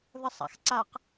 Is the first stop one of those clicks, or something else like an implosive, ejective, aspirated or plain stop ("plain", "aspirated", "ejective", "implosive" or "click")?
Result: click